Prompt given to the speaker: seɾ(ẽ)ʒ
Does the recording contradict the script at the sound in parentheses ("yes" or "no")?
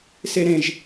no